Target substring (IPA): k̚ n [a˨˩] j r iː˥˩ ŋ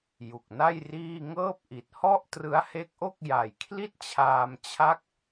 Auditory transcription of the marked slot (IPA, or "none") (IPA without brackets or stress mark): a˥˩